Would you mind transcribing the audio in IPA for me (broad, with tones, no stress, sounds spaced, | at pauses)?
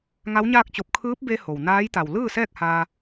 ŋ a˧˥ w ɲ aː˥˨ k̚ t͡ɕ o˧ p̚ kʰ ɯː˧˥ p̚ b e˧ h o˩ w n aː˧˥ j t̪ a˩ w l ɯː˥˨ s ɛː˥˨ k̚ h aː˧